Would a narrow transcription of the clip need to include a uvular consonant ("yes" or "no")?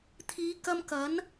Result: no